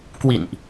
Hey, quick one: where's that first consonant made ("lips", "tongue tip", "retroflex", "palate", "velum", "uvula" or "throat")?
velum